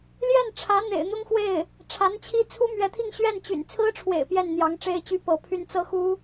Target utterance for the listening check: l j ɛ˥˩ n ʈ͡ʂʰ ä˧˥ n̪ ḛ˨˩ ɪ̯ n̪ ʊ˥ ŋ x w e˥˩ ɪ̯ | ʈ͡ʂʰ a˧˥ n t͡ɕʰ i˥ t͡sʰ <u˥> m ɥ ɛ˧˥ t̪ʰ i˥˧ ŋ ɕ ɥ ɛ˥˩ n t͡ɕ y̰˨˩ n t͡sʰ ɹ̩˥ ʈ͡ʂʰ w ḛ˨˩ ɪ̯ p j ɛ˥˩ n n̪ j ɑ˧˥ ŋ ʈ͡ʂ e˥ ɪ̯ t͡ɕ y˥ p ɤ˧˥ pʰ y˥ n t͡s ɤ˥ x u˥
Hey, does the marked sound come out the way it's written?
yes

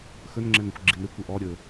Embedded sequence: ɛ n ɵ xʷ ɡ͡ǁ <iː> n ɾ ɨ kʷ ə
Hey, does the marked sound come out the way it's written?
no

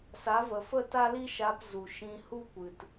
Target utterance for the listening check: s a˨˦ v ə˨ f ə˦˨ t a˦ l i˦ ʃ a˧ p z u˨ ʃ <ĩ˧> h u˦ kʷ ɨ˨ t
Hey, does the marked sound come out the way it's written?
yes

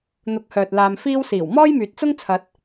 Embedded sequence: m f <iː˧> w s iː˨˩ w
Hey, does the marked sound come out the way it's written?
no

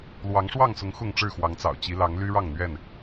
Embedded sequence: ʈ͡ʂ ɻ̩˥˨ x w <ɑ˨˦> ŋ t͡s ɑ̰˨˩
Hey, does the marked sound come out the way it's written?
yes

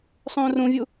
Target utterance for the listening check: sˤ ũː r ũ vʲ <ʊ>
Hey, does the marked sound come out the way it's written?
no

